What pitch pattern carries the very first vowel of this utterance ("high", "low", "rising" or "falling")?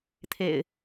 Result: low